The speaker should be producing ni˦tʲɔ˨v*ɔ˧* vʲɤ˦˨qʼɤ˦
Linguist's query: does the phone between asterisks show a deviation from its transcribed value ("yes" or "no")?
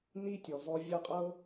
no